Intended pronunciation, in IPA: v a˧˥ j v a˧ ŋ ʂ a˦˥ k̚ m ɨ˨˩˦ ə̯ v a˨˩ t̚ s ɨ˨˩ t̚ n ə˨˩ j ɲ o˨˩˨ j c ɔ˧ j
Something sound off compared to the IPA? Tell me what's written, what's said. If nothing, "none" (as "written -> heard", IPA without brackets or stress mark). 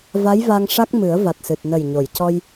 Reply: none